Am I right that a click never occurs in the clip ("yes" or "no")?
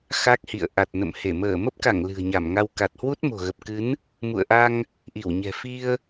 yes